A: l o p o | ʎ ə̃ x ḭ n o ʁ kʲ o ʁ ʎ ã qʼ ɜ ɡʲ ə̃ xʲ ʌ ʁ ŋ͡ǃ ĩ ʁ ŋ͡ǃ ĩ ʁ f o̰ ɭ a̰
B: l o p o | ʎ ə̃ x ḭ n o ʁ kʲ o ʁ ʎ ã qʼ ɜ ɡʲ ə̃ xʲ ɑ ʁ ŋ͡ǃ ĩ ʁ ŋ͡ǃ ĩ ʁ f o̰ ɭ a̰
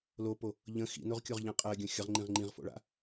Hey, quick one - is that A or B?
A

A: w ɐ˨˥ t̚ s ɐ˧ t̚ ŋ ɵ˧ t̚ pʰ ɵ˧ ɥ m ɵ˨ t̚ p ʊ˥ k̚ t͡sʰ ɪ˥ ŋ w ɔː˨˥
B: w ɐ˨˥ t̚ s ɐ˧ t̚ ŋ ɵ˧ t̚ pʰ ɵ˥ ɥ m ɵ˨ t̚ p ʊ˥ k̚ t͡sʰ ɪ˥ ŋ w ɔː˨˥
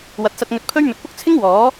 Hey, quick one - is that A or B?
B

